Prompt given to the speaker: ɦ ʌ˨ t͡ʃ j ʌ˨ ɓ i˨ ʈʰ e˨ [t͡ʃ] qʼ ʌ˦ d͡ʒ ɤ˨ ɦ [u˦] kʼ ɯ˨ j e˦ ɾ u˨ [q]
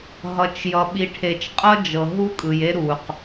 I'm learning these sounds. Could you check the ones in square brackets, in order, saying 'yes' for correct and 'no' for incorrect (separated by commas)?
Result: yes, yes, yes